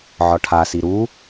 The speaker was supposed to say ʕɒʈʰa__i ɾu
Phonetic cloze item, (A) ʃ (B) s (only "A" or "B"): B